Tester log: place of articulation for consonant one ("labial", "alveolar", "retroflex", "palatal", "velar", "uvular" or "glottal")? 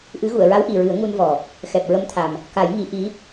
glottal